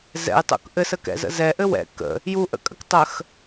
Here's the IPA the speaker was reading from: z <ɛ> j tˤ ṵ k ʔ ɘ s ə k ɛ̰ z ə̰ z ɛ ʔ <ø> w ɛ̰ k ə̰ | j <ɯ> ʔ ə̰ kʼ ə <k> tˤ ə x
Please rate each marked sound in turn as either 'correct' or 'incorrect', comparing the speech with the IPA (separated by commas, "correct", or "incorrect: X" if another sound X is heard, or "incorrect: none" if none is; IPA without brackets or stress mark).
incorrect: ɛ̰, incorrect: ɘ, incorrect: u, correct